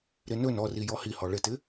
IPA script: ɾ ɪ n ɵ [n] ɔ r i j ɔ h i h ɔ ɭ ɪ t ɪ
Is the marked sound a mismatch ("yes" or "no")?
no